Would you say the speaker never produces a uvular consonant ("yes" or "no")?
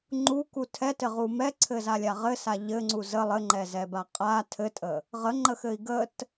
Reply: no